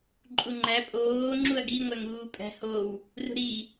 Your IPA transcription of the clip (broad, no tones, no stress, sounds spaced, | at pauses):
ǃʼ u ŋ͡ǃ æ pʼ oː ŋ͡ǁ u ɐ̯ ɡ i ŋʷ æ ŋ uː pʼ æ̤ h o w | r ṳ ɾ i